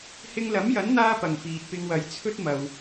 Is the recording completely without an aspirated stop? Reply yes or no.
no